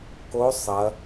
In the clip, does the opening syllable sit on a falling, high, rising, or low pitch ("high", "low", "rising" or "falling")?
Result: rising